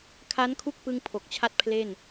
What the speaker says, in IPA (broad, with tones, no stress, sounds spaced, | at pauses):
kʰ a˦˥ n kʰ u˥˩ k̚ p ɯ˧ ŋ pʰ o˨˩ k̚ t͡ɕʰ a˥˩ t̚ pʰ l e˥˩ n